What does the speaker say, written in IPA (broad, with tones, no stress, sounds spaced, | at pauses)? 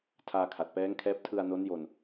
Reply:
tʰ aː˧ kʰ a˨˩ t̚ p ɛː˦˥ ŋ kʰ ɛː˦˥ p̚ tʰ ɯ˧ a̯ n o˦˥ n j o˧ n